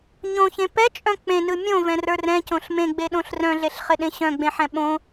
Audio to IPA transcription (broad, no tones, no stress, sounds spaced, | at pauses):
ɲ õ ç ẽ p ɛ t͡ʃʼ œ̃ k͡p ẽ n ɯ mʲ õ v ɛ̃ r ə˞ r ɛ̃ c õ ɬ m ẽ ɡ͡b e ɗ õ ɬ r œ̃ ɮ e ɬ χ ɪ ɗ ẽ ɕ œ̃ ɡ͡b ẽ ħ ɛ̃ ɓ õ